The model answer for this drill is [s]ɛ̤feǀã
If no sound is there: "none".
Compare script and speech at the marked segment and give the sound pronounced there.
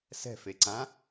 s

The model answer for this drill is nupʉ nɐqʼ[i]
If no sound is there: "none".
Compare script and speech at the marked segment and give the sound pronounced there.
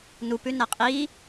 i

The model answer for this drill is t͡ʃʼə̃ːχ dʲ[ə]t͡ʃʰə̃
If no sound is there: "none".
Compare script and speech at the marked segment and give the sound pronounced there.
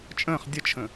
ə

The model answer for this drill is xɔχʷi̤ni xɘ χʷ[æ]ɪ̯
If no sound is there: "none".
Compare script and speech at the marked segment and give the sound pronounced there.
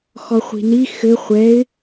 ɛ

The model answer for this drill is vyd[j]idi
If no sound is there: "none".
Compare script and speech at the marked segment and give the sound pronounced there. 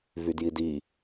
j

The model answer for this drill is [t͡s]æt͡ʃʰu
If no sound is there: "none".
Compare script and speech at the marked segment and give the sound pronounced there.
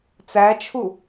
t͡s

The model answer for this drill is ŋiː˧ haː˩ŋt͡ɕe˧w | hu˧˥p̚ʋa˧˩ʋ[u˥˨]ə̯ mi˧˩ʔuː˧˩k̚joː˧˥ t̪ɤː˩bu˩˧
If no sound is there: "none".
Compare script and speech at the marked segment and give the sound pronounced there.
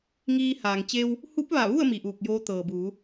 u˥˨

